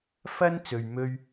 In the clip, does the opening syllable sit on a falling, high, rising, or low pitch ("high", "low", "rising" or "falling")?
high